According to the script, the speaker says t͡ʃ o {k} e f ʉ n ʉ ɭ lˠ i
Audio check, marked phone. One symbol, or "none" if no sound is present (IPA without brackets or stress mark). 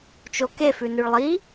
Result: k